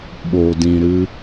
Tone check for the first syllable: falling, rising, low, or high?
low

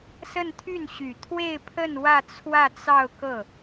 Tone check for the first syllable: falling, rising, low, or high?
falling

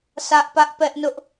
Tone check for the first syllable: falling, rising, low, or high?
high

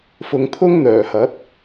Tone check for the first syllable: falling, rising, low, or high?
low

